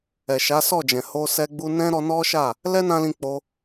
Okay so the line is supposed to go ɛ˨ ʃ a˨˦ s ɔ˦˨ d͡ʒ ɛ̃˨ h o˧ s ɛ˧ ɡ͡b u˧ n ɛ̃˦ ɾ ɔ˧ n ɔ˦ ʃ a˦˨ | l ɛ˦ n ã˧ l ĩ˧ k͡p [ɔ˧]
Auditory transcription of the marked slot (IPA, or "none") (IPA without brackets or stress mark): o˧